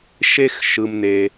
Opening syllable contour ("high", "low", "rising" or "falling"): high